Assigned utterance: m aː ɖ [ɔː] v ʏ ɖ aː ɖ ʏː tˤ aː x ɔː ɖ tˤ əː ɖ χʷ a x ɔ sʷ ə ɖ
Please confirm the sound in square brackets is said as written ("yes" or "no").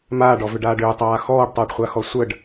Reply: no